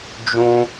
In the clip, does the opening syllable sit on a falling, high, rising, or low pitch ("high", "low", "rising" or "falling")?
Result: high